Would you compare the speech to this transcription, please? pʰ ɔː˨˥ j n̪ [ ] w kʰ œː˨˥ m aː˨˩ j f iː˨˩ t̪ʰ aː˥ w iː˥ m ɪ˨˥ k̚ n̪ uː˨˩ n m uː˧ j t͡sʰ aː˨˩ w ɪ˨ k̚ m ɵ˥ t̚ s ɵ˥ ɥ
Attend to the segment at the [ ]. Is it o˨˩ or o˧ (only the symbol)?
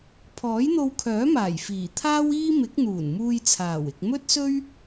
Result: o˧